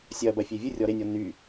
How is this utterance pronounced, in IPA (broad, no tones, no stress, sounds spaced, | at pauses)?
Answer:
sʲ ɐ b ɐ fʲ e vʲ ɨ rʲ ɔ ɾ e nʲ ɔ n y